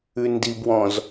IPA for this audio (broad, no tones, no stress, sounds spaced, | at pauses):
ʉ n d i b w ɔ̃ z